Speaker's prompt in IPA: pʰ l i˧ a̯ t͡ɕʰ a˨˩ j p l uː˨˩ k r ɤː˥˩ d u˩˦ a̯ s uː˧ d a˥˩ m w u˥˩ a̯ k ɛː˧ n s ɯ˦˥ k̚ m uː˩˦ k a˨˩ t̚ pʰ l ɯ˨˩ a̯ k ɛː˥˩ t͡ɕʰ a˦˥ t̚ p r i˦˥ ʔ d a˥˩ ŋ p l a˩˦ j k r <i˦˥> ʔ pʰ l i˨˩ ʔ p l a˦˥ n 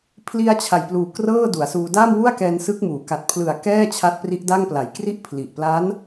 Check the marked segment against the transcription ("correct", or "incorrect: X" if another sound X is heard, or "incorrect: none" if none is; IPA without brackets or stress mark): correct